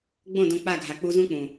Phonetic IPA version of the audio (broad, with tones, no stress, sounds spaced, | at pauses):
ɡ͡b õ˦˨ d õ˧ k͡p a˦˨ ɡʱ a˨ k͡p u˧ z ũ˦ k͡p ũ˨